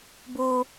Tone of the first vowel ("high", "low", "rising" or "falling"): high